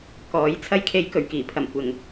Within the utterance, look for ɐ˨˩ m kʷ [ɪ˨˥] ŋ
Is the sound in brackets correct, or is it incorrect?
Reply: incorrect